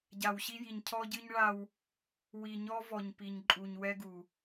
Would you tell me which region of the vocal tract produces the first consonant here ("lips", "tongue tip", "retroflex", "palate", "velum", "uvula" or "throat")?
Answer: palate